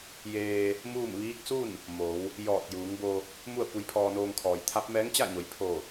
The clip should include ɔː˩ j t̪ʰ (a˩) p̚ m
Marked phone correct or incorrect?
incorrect: a˧˥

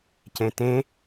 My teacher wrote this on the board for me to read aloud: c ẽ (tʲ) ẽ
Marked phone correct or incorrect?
incorrect: t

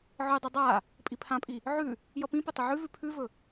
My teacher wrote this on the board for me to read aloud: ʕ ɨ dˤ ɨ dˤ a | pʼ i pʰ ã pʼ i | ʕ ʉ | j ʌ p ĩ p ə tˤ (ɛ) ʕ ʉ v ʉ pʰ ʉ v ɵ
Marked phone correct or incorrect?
incorrect: ə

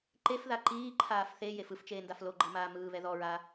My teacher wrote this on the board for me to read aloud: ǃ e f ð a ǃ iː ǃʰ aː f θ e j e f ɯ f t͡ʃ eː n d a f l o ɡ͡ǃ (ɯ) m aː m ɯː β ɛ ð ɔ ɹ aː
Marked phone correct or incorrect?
incorrect: ɤ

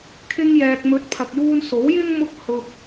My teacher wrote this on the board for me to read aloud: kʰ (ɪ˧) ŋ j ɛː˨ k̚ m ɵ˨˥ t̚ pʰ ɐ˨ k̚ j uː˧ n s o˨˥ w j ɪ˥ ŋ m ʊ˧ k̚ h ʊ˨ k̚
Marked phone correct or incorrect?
correct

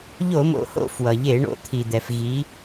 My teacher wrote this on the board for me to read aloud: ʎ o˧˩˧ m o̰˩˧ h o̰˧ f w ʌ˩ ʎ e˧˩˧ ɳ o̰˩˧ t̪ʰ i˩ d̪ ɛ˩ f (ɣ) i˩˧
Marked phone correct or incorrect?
correct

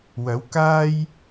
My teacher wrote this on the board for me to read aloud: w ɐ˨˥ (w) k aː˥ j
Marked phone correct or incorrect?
correct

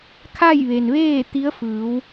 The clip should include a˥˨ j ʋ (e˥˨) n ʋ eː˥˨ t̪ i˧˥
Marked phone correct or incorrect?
incorrect: e˩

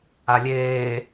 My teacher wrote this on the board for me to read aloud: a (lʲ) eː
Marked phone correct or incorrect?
correct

